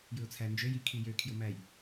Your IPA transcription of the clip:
j ɯ ʊ̯ t͡sʰ æ n d͡ʒ ø j i kʰ i j ø kʰ j o m æ j

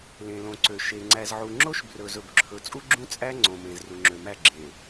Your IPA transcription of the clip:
l ẽ˨ l õ˨ ǀ ø˨ ʃ e˨ ŋ͡ǀ æ˨ z ʕ u˨ ŋ͡ǁ o˦ ʃ b r ɵ˨ z ɵ˨ b ǁʰ ɵ˨ t͡sʼ u˦ ɡ͡ǁ ũ˦ t͡sʼ æ˦ ŋ͡ǀ õ˨ m ẽ˨ z r u˨ ŋ͡ǁ ø˨ m æ˦˨ ɡ͡ǁ ẽ˨

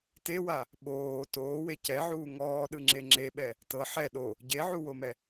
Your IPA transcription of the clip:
t e w a | ɓ oː t oː w e c ɛ ʕ uː ŋ ɔː ɗ ɯ ŋ͡ǁ e ŋ͡ǁ e ɓ ɛ | t ɤ ħ ɛ ɗ o | ɟ e ʕ u w o m ɛ

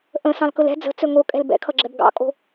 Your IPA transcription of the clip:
ʔ ə̃ s ɑ̃ l k ɵ l ɛ̤ d͡z ə̤ t͡s ɵ ŋ o kʼ ɛ̤ l b ɛ̰ kʰ ʌ ɡ͡ǁ ɛ b ɡ ɑ̰ kʼ o̤

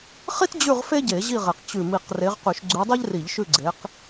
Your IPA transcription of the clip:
χ i˥ t d͡ʑ ʉ˦˨ ʁ f e˥ ɟ e˧˩˧ ʑ i˦˨ ʁ e˨˩ q t͡ɕ ʉ˨˩ m i˨˩ q r e˨˦ ʁ q ʉ˧˩˧ ʃ ɡ͡ǀ ʉ˨˦ dˤ ɛ˥ ʎ r i˧˩˧ ʎ ʃ ʉ˦˨ ɡ͡ǀ e˨˦ q

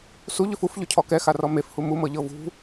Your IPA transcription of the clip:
s u ʎ ʏ f u f ʎ ʏ cʰ ɔ k ɛ x a r ɔ m e f h u m u m ɤ ʎ ɤ v ṳ

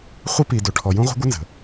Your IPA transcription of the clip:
χʷ ə˦ p i˨ d o˨ ʈʰ ɔ˨ j ũ˦ ʁʷ ə̤˦ ɡʷ ə˦ n z ə̤˨

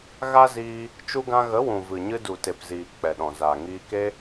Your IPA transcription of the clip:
ɣ a˦ z iː˧ | t͡ʃ u˧ ɡ ã˧ ɣ ə˨˦ w ũ˨ v ɨ˨ ɲ ɨ˧ d u˨ t e˨ p z iː˨ k͡p ɛ˨ ɗ ɔ̃˨ z aː˨ ŋ iː˧ k e˧

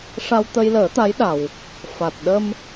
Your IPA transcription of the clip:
ʂ a˧ w t̪ ə˧ j l əː˨˩˦ t̪ a˧˥ j ɗ a˨˩ w | f a˨˩ t̚ ɗ ə˧ m

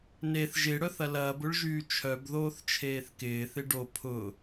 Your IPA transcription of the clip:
n e θ ʒ ɪ ɽ œ θ ɐ l ɐː b ʊ ɭ ʒ yː t͡ʃʰ œ b ð oː θ t͡ʃʰ eː θ k ɪː θ ɪ ɖ o pʰ ʊː

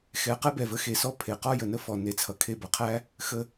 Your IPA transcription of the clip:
x ɛ˨ q ɛ˦ b ɛ˨ v ə˧ x e˨ s ɔ˦ pʰ e˨ q ɔ˦ j ə˨ n ə˦ f ɔ˨ n e˨ t͡sʰ ʌ˨ kʰ e˧ b ʌ˨ qʰ æ˦ | x ə˧

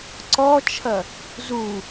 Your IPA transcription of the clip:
ǀ ɔ t͡ʃʰ ɐ | z u

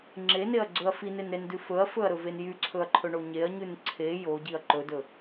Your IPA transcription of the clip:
ŋ͡ǁ e n e ɐ̯ ɡ͡ǀ ɵ ɐ̯ f i n e n ɾ e n d ʉ f ɵ ɐ̯ f ɵ ɐ̯ ɾ ɵ v e n j y ǀʰ ɵ ɐ̯ ǃʰ ɵ ɳ o ɲ e ɐ̯ ɲ ʉ n ǀʰ e j o ɟ i ɐ̯ ǃ ɵ d ɵ

